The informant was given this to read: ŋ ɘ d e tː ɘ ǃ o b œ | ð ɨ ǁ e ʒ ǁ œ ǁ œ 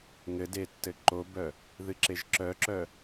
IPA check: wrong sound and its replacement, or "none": none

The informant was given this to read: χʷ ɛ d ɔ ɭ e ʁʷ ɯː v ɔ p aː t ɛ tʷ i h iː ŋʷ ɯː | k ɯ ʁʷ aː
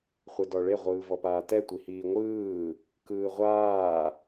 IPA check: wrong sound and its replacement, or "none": ɯ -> ɯː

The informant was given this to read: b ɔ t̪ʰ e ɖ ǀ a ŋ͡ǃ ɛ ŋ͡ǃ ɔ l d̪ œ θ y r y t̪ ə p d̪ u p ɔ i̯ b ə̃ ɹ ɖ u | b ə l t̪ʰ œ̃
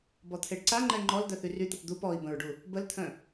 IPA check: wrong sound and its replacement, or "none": none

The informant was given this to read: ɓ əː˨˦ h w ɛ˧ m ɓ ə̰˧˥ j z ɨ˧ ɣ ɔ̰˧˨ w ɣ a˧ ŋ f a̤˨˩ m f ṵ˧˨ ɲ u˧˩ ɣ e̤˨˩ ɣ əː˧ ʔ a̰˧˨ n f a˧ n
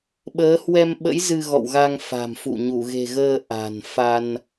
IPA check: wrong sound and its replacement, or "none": a̰˧˨ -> a̤˨˩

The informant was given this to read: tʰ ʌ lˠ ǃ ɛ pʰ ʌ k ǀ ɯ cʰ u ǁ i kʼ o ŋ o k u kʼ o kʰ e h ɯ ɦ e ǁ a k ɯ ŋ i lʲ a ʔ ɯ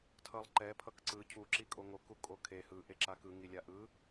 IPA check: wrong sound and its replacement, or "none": ɦ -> ʔ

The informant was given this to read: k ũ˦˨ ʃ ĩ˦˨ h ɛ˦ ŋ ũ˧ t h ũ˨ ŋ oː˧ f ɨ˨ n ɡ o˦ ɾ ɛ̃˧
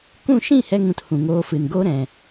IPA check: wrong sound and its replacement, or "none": none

